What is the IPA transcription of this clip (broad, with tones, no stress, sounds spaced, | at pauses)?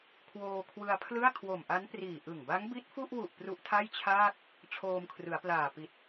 kʰ w oː˧ kʰ w ɯ˧ a̯ pʰ l ɯ˥˩ a̯ kʰ w o˨˩ m ʔ a˦˥ n p r iː˨˩ ʔ ɯ˨˩ ŋ b a˦˥ ŋ b i˦˥ t̚ f u˥˩ ʔ w u˨˩ ʔ p r u˦˥ ʔ tʰ a˥˩ j t͡ɕʰ aː˥˩ k̚ | t͡ɕʰ oː˧ m kʰ r ɯ˩˦ a̯ p l aː˨˩ p i˨˩ t̚